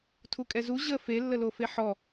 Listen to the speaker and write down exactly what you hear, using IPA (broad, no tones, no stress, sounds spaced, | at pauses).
tʰ u kʼ ɛ z u ʑ ə f e lː ə l o f e ħ ɔ